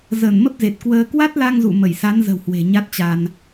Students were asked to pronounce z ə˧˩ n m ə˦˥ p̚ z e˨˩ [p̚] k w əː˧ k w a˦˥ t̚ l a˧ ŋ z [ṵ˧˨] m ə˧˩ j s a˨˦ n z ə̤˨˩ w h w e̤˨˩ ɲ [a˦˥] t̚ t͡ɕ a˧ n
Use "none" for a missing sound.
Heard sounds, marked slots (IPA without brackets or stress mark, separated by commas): t̚, ṵ˧˨, a˦˥